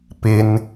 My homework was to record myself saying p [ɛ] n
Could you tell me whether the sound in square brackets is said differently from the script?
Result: yes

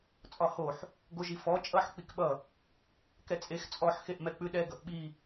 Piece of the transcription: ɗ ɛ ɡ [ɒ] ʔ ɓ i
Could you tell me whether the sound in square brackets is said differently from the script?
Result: yes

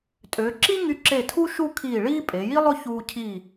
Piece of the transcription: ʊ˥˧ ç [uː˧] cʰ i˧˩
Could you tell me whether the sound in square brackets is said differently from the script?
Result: no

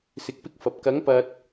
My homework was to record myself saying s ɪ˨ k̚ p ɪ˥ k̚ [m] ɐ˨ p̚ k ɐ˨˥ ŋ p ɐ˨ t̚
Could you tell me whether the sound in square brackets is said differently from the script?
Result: yes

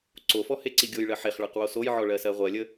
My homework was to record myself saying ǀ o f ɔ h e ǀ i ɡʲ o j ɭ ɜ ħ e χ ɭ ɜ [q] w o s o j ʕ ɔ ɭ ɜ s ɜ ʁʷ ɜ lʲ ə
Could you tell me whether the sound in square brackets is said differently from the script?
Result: no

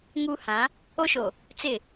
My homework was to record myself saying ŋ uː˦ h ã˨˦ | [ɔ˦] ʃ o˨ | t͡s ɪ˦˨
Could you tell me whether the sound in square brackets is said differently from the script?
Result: yes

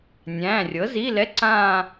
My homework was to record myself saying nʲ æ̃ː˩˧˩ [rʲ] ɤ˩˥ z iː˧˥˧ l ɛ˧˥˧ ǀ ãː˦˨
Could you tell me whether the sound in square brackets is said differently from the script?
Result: no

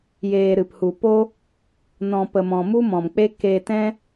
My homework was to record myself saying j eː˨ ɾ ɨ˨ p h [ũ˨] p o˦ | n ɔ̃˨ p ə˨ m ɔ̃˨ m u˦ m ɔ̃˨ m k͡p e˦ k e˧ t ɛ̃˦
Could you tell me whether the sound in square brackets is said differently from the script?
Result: yes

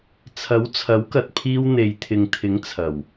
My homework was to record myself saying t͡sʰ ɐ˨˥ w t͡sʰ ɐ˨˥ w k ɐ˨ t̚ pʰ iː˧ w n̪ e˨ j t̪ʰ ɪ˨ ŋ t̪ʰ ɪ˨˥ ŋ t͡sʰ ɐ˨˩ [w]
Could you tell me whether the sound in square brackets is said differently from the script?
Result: no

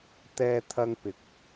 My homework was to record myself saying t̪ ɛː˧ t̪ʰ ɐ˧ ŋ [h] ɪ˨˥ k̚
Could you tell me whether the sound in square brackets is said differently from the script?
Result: yes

